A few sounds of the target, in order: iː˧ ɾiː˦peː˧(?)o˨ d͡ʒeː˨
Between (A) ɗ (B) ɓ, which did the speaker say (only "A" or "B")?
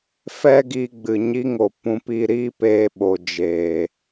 B